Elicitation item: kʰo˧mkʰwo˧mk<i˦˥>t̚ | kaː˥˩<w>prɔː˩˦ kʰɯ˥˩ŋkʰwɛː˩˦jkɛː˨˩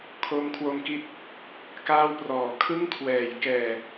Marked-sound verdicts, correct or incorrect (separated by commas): correct, correct